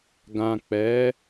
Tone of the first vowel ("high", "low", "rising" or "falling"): low